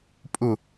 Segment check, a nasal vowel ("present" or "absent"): absent